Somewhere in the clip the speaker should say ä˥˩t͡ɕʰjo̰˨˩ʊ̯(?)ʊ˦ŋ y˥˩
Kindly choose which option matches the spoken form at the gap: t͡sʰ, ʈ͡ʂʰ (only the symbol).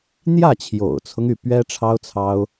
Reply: t͡sʰ